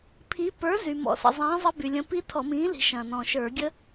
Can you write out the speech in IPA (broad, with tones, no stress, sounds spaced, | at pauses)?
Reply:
pʰ i˨˥ p ə˞˨˥ z y˩ m ɔ̰˩˧ s ə̰˩ zˤ ĩː˨˥ zˤ ə˦˥ b y˩ lʲ ə̃˨˥ p i˦˥ tʰ ɔ˧˩˧ m ĩː˨˥ l i̤˩˧ ʃ ɐ̃ː˩ n ɔ̃˩ ʃ ə˞˧˩˧ ɡʲ ə˦˥